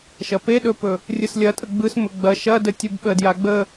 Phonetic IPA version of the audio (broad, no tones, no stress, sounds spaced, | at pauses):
ʃ ɐ p e ɗ ɵ p ɵ | rʲ ɯ s lʲ ɐ tʼ ə ɡ͡b ɯ s m ɵ ɡ͡b ɐ ʃ ɐ d ə tʲ ɯ b ɓ ə d j a ɡ͡b ə